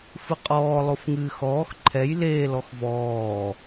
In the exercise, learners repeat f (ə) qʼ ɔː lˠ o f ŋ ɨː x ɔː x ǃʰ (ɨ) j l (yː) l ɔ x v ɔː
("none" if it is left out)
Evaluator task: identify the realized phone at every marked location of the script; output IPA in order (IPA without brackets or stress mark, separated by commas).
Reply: ɨ, ɛ, eː